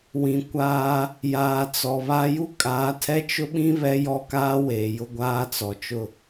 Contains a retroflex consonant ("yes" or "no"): no